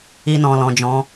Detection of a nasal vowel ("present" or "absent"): present